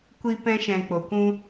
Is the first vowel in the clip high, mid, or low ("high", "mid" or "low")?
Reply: high